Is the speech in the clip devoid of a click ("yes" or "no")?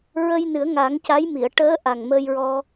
yes